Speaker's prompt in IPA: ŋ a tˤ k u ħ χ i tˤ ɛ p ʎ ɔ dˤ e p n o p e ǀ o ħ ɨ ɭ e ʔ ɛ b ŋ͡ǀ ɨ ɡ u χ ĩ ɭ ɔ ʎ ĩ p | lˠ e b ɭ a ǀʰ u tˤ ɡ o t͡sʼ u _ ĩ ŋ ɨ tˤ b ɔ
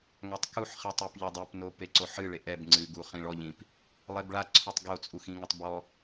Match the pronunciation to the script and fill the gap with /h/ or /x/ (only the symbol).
x